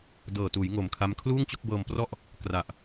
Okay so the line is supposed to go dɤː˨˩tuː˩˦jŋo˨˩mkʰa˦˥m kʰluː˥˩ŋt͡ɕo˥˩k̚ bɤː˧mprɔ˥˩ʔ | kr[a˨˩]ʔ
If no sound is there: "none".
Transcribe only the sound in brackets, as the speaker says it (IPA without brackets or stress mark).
a˨˩